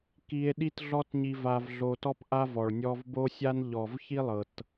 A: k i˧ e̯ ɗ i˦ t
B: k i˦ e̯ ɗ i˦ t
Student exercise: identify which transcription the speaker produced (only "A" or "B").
A